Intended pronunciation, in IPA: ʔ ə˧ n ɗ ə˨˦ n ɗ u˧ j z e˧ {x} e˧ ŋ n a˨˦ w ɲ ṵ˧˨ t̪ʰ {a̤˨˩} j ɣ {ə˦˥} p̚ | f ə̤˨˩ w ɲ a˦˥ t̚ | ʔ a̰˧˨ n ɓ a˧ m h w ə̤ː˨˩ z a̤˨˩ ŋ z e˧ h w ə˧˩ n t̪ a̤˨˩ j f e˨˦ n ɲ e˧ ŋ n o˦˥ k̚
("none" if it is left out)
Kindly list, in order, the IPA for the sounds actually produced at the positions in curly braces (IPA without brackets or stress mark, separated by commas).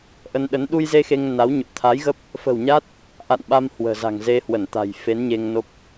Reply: x, a˨˦, ə˦˥